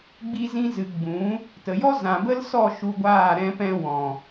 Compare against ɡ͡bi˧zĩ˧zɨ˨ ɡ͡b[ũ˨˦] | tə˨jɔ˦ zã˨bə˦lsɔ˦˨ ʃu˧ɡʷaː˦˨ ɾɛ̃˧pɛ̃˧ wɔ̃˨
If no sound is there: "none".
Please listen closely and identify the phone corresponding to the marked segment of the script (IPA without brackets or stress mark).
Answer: ũ˨˦